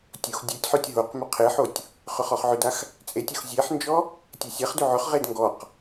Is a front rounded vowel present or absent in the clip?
present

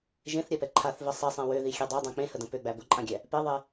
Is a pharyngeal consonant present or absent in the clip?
absent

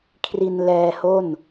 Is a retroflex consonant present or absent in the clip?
absent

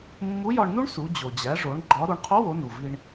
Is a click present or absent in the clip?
present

